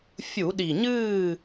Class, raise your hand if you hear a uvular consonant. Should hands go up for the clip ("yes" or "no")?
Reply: no